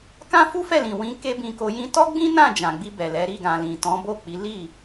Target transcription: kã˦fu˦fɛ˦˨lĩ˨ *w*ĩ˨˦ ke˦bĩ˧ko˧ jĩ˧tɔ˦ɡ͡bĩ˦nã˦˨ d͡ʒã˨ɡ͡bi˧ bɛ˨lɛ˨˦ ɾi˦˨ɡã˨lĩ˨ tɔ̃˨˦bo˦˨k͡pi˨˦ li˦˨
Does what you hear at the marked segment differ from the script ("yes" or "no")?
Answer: no